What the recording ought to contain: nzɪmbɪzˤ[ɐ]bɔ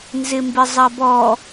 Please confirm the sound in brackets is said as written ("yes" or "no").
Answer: yes